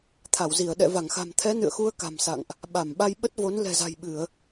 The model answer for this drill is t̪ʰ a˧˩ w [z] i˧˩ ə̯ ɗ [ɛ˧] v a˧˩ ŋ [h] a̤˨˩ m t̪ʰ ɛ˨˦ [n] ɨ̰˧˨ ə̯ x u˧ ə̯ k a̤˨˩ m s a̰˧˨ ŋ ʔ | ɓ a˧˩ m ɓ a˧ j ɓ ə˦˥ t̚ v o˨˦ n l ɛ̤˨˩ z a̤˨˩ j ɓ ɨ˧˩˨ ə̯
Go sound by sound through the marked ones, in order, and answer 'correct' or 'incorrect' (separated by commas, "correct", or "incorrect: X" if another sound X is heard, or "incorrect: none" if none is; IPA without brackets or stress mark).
correct, incorrect: ɛ̰˧˨, incorrect: x, correct